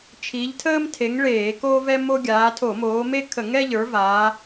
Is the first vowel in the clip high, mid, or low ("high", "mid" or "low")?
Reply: high